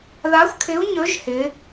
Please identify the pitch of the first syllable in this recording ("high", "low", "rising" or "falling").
rising